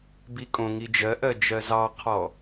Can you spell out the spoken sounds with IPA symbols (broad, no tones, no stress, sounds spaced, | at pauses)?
b i kʼ õ ŋ i d͡ʒ ɜ ʔ ɜ d͡ʒ ɜ z ɑ qʰ ɔ